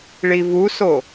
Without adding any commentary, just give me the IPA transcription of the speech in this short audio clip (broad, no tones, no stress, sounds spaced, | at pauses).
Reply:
ɭ i v u s o